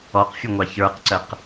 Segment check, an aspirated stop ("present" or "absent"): absent